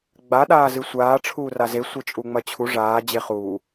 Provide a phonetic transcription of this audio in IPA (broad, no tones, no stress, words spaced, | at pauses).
ɡ͡ba ɗaːzɨsʷaː ʈ͡ʂʰuːraze sʷet͡ʃʼuŋ͡mɐt͡ɕʰu ʐaː d͡ʑeχuː